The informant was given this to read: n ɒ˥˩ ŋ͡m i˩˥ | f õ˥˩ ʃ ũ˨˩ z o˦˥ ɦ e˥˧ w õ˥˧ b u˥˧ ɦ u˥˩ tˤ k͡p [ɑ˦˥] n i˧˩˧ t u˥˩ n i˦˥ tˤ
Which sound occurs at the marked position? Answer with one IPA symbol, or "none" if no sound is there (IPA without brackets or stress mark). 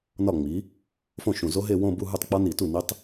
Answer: ɒ˦˥